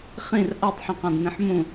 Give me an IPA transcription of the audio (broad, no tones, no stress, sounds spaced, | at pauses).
χ ĩ r ʔ a tˤ ħ ĩ q ã d n ĩ ħ m ũ